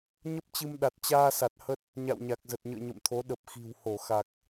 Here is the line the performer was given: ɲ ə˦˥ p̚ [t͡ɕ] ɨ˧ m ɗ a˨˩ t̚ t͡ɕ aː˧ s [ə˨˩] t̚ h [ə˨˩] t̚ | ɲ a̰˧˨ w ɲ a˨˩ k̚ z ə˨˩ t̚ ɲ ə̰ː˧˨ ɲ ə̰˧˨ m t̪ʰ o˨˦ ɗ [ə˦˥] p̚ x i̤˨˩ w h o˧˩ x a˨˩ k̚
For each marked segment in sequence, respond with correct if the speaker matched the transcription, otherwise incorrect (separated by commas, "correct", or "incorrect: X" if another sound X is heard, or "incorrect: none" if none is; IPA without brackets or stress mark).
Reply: correct, incorrect: a˨˩, incorrect: ə˦˥, incorrect: ə˨˩